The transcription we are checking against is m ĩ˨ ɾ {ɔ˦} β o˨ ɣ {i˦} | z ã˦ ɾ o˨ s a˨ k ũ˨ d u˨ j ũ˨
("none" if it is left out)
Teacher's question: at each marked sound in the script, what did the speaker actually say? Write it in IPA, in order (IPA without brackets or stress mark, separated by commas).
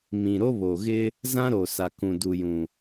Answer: o˦, ɪ˦